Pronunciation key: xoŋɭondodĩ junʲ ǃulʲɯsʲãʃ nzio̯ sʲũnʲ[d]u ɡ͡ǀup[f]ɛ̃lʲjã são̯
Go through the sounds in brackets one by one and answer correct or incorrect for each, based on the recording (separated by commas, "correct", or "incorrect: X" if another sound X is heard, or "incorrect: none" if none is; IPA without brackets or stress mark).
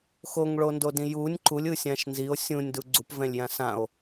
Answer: correct, incorrect: v